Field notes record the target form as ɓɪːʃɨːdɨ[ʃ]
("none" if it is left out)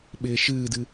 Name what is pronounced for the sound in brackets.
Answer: none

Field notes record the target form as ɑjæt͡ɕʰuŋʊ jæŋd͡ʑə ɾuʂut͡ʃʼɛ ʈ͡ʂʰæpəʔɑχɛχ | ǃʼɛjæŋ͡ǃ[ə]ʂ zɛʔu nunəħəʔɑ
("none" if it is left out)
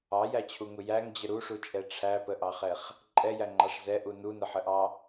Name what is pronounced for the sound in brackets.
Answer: ɑ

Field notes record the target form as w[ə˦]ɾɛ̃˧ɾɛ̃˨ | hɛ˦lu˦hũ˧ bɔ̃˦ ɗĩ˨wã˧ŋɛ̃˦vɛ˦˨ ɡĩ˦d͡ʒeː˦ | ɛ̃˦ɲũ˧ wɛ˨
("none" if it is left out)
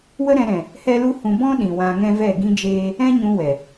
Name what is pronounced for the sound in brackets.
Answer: ə˦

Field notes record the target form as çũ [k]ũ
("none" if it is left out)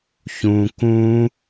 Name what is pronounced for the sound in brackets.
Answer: k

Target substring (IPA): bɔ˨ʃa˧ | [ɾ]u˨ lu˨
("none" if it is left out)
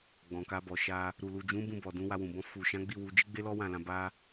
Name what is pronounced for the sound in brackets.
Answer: ɾ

